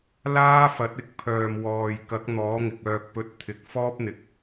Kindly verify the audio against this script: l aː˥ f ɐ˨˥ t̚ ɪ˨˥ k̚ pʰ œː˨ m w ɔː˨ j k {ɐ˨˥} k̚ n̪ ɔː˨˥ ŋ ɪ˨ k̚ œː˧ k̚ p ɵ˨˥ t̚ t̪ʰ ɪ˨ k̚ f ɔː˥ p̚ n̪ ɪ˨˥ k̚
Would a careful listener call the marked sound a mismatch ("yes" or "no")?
no